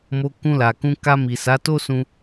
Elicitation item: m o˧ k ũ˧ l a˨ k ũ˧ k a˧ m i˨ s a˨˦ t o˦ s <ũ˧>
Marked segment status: correct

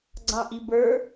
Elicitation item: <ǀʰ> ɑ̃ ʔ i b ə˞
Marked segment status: incorrect: ɡ͡ǀ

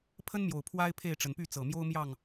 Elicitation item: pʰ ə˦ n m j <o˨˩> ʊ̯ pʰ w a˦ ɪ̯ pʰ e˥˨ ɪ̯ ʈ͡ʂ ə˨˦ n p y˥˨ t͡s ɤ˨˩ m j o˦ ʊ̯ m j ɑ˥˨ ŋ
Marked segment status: correct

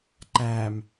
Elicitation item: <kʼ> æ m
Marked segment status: incorrect: ǃ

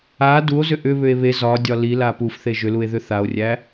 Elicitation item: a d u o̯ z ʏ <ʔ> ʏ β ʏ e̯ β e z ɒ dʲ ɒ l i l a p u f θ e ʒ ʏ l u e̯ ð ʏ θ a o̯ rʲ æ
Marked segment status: correct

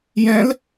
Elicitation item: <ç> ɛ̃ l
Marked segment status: incorrect: j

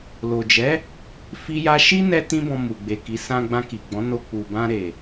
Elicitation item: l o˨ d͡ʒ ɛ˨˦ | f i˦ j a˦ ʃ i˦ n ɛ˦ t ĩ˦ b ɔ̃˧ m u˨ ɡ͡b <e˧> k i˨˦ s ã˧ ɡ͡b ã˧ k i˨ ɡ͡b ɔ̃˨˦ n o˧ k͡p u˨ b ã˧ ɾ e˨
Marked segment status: incorrect: e˨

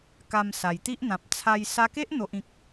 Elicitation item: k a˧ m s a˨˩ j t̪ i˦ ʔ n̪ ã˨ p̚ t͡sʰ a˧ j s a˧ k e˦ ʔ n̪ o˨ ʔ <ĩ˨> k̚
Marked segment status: correct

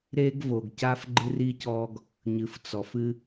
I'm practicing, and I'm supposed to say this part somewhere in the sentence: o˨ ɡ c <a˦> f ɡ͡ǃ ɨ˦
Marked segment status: correct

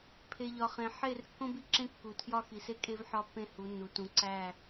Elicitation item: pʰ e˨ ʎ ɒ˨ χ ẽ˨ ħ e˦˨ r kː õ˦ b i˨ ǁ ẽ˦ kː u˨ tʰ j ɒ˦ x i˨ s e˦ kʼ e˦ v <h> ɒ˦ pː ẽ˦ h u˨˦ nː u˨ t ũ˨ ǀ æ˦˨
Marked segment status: incorrect: ħ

